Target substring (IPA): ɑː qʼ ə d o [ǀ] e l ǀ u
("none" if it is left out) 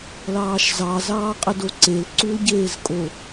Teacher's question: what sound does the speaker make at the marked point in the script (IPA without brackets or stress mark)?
ǀ